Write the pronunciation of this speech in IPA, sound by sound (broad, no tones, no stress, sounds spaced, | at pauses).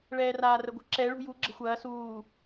ɭ ɛː r aː r ə ɡʷ ə̤ ǁ ɛ ɭ ṳ j u ɡ͡ǁ ə̤ xʷ ɐː s uː